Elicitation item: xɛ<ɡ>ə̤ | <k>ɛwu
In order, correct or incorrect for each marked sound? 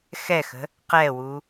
incorrect, incorrect

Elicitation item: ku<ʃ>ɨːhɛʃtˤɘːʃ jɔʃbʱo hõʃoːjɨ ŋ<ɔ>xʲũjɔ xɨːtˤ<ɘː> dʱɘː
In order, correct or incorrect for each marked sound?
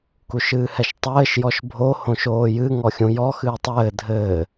correct, correct, correct

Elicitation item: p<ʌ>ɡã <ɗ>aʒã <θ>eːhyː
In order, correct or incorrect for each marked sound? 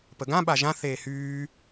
incorrect, incorrect, correct

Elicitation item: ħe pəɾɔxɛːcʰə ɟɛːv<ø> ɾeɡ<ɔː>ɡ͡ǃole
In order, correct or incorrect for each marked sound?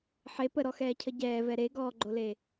incorrect, correct

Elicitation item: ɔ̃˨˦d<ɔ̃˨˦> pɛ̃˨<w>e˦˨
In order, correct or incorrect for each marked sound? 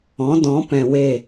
correct, correct

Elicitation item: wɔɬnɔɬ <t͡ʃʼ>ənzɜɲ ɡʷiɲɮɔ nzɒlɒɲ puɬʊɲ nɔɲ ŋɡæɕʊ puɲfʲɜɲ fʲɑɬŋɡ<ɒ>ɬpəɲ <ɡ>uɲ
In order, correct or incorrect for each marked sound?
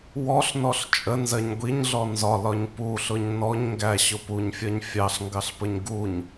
correct, incorrect, correct

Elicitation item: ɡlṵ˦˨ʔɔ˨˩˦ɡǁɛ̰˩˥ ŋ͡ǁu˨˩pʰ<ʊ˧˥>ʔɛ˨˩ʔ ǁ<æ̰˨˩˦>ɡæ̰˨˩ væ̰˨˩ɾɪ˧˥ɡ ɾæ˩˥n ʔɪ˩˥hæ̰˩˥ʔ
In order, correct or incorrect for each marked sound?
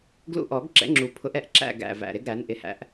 correct, incorrect

